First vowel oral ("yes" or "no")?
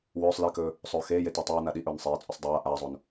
yes